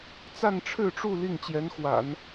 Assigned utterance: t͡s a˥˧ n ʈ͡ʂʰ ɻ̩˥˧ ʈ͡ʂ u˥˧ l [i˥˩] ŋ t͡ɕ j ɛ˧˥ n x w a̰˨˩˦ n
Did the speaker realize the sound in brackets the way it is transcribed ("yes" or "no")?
yes